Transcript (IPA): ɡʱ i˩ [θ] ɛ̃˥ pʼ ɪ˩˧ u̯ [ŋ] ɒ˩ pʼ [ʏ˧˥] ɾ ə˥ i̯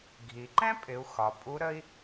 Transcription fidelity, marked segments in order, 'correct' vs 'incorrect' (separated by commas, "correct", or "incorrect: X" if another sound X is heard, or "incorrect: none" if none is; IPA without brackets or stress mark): incorrect: ǃ, incorrect: x, incorrect: u˧˥